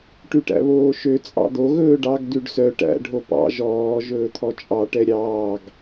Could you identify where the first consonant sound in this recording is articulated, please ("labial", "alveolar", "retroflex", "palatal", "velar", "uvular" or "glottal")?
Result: retroflex